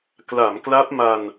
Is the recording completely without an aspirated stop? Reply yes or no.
yes